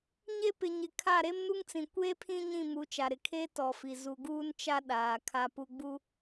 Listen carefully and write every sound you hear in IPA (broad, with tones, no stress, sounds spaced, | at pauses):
ɲ e˦ p ɪ˨ ɲ ɪ˨ kʰ a˦˨ ɾ e˦ m n u˦ ŋ t͡s ĩ˨ kʷ eː˦ pʰ ĩ˦ ɲ ĩ˦˨ m u˨˦ t͡ʃ a˨ ɾ ɪ˨ kʰ e˦ t ɔ˨ f i˨ z u˨ ɡ uː˦ n t͡ʃ a˦ ɗ aː˨ kʰ a˦ p u˦ ɡ͡b u˦